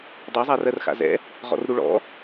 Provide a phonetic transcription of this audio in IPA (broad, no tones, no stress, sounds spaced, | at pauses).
dˤ a zˤ a r ɜ r x a̰ z ɛ̰ | ʁ ɔ̰ r ɾ u ɭ ɔ̰